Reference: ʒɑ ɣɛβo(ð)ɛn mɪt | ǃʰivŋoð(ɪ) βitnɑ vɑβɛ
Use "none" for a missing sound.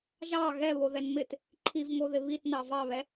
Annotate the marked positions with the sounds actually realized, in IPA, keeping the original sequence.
ð, ɪ

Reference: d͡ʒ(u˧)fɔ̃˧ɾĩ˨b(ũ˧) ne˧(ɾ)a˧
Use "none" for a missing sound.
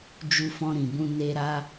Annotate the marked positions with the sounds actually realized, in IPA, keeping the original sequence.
u˧, ũ˧, ɾ

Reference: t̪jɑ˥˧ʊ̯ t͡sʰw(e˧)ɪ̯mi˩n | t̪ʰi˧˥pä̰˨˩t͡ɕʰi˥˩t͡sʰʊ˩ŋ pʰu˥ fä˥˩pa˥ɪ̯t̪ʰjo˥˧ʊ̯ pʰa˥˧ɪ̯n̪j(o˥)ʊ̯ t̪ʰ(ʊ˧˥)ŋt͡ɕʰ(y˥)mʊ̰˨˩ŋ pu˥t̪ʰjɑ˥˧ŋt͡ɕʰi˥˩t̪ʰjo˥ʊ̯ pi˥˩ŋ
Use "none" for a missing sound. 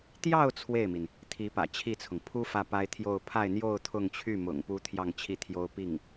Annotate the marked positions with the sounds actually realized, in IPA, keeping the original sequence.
e˥˩, o˥˧, ʊ˥˧, y˥˩

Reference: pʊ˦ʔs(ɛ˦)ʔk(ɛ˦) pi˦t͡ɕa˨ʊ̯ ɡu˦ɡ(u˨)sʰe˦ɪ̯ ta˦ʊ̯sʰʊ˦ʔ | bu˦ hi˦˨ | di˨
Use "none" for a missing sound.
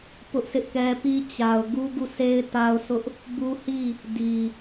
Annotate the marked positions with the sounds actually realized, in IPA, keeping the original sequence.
ɪ˦, ɛ˦, u˦˨

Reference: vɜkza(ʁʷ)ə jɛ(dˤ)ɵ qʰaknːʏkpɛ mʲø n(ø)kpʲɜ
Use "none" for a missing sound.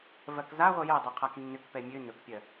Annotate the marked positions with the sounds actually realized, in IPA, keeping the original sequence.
ʁʷ, dˤ, ɵ

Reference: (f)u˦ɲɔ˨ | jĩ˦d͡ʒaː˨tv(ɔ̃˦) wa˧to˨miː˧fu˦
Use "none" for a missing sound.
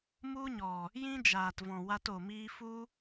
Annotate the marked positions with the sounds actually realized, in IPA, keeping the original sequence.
m, ɔ̃˨

